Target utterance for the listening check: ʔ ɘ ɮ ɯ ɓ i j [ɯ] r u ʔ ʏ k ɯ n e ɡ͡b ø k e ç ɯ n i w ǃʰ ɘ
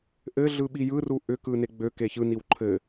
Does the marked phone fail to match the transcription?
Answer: no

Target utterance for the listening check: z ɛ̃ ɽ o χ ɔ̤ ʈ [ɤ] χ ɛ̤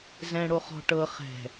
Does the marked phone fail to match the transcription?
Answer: no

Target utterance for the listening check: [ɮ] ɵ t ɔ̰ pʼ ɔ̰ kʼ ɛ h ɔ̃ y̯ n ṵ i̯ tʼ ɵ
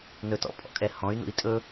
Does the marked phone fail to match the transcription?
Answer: yes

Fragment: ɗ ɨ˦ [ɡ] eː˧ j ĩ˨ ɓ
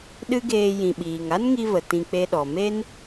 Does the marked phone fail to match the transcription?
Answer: no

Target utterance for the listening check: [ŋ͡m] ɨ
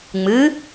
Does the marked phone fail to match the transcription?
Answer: no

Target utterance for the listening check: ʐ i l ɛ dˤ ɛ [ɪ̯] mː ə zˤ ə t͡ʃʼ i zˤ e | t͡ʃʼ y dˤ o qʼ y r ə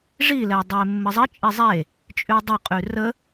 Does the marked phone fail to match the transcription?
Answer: no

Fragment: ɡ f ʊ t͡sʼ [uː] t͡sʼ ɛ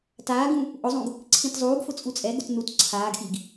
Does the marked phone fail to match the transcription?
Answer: yes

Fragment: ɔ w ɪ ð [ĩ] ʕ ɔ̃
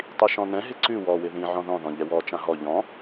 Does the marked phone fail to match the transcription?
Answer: no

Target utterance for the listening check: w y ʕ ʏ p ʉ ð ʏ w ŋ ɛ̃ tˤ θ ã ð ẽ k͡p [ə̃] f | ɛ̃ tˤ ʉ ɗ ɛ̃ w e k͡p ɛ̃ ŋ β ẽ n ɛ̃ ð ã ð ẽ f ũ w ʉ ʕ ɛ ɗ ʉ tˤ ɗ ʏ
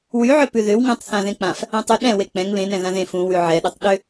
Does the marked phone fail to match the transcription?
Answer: yes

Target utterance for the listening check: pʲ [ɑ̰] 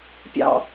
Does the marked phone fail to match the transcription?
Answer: no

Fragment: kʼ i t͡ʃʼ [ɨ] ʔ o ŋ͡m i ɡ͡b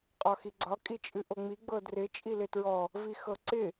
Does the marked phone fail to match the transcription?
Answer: no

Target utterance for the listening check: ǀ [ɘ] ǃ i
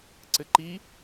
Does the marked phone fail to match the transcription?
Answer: no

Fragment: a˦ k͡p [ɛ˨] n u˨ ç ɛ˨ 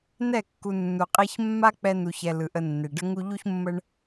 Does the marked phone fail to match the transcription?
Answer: yes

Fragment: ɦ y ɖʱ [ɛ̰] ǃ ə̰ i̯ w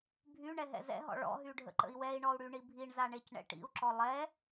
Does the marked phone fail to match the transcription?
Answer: yes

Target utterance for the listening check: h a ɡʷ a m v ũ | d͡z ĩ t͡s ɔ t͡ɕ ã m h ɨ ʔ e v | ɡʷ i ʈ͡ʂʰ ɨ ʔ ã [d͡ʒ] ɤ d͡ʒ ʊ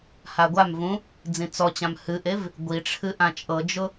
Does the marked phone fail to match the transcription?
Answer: yes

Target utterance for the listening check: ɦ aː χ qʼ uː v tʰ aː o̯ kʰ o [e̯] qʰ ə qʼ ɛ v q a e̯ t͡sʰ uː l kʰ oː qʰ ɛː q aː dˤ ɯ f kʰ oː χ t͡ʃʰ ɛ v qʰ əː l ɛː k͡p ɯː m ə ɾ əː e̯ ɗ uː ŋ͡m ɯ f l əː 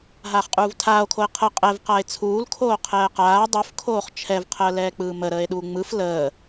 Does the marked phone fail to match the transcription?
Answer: no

